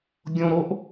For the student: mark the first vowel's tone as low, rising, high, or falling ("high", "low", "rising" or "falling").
low